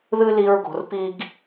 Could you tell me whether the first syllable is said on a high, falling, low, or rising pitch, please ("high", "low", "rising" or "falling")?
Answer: high